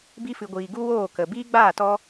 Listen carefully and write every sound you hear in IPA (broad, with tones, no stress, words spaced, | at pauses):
bi˧fɨ˨ɡʷiː˨ ɡu˦woː˦˨ kə˨biː˦ɡ͡baː˦˨ tɔ˧